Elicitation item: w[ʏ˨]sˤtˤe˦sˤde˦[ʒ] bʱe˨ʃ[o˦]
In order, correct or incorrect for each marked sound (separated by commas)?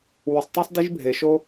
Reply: incorrect, correct, correct